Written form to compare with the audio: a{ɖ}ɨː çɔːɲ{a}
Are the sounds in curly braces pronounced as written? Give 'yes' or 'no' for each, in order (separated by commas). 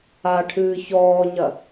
no, no